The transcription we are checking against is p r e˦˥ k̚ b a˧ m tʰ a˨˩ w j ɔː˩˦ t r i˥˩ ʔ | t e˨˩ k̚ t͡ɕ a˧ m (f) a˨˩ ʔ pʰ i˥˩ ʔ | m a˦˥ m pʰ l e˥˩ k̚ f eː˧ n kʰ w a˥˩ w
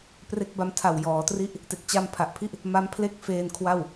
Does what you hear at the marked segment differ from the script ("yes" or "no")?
yes